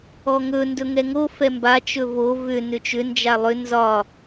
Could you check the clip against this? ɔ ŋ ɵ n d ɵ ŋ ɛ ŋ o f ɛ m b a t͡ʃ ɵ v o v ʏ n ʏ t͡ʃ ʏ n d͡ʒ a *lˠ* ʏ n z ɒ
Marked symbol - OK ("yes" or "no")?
yes